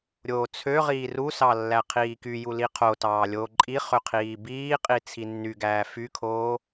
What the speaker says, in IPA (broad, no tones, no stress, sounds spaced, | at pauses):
ɾʲ oː t͡sʰ ø ʁ iː r u s ɑ lː æ qʰ iː k y j u l i qʰ o t ɑː lʲ oː ǃʼ i χ ø qʰ iː b iː qʼ i t͡sʰ i nː y ɡ æː f y kʰ oː